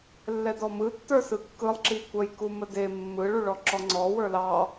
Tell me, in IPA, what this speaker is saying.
lː ɛ d ɔ m ɯ tː ə˞ s ɯ kː ɯ lˠ ǁ i kʷ ə j k u m ə d e mː ɯ ɭ u ɭ ɔ ǁ ɔ ŋ͡ǀ ɔ w ə˞ l ɑ

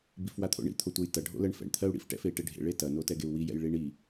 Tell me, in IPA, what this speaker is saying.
b i f w a t̪ʰ o̰ ɳ ḭ t̪ʰ o tʷ ɐ j t ɐ ɖʱ o̰ l ɜ ɳ f ɛ̰ ɳ t̪ʰ ɜ u̯ ɽ ḭ f ʈ ɛ̰ f e i̯ ʈ e ɖʱ ḛ ɭ e t ɐ n o t ɛ ɡ e u̯ w i j ɛ̰ j ɭ i ɳ i

